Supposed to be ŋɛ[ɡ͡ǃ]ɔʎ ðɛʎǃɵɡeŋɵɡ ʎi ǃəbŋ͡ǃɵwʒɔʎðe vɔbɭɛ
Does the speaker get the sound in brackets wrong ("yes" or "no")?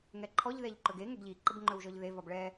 yes